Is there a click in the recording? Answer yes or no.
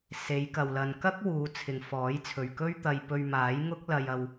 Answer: no